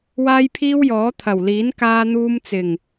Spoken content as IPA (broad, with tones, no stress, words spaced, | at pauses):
waː˥jpʰiː˥wjɔː˨˥ t̪ʰɐ˨˩wliː˨˥n kaː˧n̪uː˧mt͡sɪ˨˩ŋ